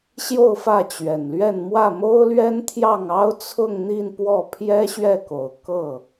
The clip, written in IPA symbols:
ɕ j o˥˧ ʊ̯ f ä˥˩ t͡ɕ ɥ ɛ˨˩ n l ɥ ɛ˥˧ n m w ä˥˩ m o˥ ʊ̯ l ɥ ɛ˥ n t̪ʰ j ɑ˥˩ ŋ ɑ˥ ʊ̯ t͡sʰ ʊ˥˧ ŋ n̪ i˥˧ n p w ɔ˥˩ pʰ j ɛ˥ ɕ ɥ ɛ˥˩ k o˨˩ ʊ̯ k ɤ˥˩

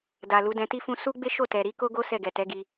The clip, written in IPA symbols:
d a˨ l u˨˦ d ɛ̃˧ t i˦ f ũ˦ s u˦ ɡ͡b e˦ ʃ o˦˨ t ɛ˨ ɾ i˨˦ k o˦ ɡ o˦ s ɛ˦˨ ɡ ɛ˨ t ɛ˨˦ ɡ i˧

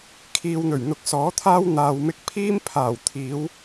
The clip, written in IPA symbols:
kʰ iː˧ w n̪ ɵ˨˩ ɥ n̪ ʊ˧ k̚ s ɔː˨˥ t̪ʰ aː˥ w n̪ aː˨ w m ɪ˧ k̚ pʰ iː˥ m pʰ aː˨˩ w t̪ʰ iː˨˧ w

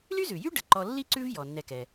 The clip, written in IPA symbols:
l y˥ z ʉ˩ j y˥ ɖ ə˩ ǃ ɔ˨ lː i˦ ǀ ʉ˦ v j ɔ˩ nː ɛ˨ k ɛ˩

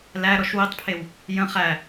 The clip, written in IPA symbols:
l æ ɾ ɔ ʃ w i tˤ pʰ e w | j ə̃ χ æ

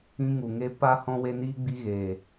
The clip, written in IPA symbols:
ĩ˧ ŋ u˨ ŋ e˧ p a˧ h ɔ̃˧ w e˧ n iː˧ ɡ͡b i˧ ɣ eː˨

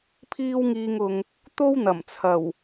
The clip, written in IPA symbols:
pʰ iː˧ w ŋ iː˨ ŋ ʊ˨ ŋ | t̪ o˥ w n̪ ɐ˨˩ m t͡sʰ ɐ˨˩ w

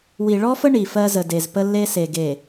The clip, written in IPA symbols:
w i˨ ɭ ɔ˦ f ə˦ ɳ i˨ f ɜ˦ z ə˨ d e˨ z p ə˦ lː e˦ s e˨ ɡ e˨

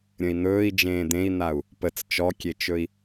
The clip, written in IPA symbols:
ɾʲ ə̃ i̯ n̪ ɵː i̯ d͡ʒ ẽː d̪ ẽ i̯ n̪ a u̯ | p ə t͡s t͡ʃ ɔ kʲ e t͡ʃ ɵ i̯

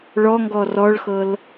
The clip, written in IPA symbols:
ɭ ɔ ŋ ɡ ɔ r ɔ ɭ x ɤ l

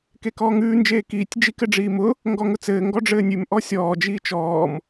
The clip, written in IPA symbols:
k e k ɔː ŋ ʉː n d͡ʒ eː k iː tʲ d͡ʒ i k ɘ ɖ͡ʐ iː m ʊ | ŋ ɡ ɔ ŋ ʊ t͡s ɘː ŋ ɡ ɔ ɖ͡ʐ ɘː nʲ ʉ m ʔ ɔ sʲ ɔː d͡ʒ iː t͡ʃ ɔː m

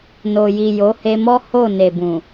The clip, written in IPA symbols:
n o˨ j i˨ j o˨˦ h e˧ m ɔ˦ h o˦˨ n e˨ b ũ˨

